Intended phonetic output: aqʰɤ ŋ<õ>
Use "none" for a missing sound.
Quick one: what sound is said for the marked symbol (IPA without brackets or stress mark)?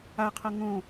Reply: õ